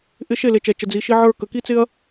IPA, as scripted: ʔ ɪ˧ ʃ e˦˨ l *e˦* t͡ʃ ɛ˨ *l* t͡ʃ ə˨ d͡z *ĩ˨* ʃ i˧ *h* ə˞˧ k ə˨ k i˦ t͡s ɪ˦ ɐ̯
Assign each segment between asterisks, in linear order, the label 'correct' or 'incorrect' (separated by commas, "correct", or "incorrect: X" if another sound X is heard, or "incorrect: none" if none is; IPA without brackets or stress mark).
incorrect: e˨, incorrect: none, incorrect: i˨, incorrect: ʕ